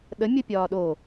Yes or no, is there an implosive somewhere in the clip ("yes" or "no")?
yes